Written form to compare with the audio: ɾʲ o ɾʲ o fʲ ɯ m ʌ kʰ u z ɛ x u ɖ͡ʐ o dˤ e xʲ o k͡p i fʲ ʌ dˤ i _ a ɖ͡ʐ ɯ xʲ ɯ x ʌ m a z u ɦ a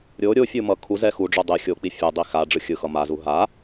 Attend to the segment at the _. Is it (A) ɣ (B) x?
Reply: B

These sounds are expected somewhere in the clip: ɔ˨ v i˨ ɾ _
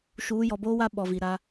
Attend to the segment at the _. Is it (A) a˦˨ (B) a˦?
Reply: B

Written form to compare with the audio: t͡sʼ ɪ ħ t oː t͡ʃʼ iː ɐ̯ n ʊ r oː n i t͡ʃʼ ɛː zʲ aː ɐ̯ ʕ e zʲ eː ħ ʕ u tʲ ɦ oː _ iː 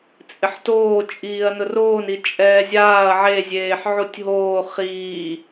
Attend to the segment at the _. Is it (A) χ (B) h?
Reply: A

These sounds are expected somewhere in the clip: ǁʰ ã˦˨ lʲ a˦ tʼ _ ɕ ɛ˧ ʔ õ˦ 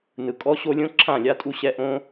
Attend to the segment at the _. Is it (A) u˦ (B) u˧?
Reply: B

